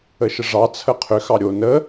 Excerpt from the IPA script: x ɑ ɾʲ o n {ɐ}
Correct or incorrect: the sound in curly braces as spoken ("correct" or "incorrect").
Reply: incorrect